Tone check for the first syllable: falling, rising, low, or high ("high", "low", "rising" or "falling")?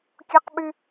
high